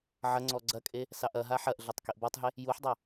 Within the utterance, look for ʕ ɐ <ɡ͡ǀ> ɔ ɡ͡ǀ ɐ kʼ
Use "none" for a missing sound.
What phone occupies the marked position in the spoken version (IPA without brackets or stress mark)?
ŋ͡ǀ